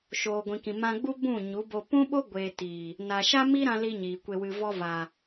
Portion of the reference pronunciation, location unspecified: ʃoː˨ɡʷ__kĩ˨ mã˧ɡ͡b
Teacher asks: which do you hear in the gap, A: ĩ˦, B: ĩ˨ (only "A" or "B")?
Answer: B